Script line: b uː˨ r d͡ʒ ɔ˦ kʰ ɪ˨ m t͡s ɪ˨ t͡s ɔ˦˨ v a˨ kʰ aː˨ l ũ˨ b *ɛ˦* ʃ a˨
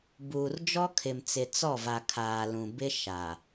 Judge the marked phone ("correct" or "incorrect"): incorrect